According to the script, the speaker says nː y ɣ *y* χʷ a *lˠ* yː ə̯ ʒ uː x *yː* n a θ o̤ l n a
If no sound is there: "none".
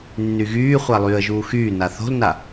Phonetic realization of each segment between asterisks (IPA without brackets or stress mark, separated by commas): yː, lˠ, yː